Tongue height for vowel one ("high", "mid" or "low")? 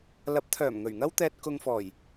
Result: low